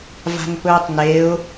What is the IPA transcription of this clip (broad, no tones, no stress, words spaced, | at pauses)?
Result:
va̤npɵːtˤneʊ̯